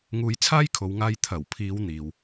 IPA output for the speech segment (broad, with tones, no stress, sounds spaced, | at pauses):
ŋ uː˧ j t͡sʰ aː˥ j kʰ o˨˧ w ŋ aː˧ j t̪ʰ ɐ˨˩ w pʰ iː˨˧ w n̪ iː˨ w